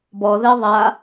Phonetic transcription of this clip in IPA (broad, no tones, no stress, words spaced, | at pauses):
bɔðɛ ðˤa